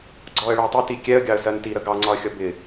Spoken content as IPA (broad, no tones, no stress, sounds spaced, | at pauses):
ɡ͡ǀ ɔ ə̯ ɭ ɪ ə̯ tˤ ɪ t i kʲ ɛ ə̯ ɡʲ ɑ ə̯ s ɜ n t i ɾ ə ɡ ɑ ŋ͡ǀ ɒ ə̯ xʲ ʌ b ɪ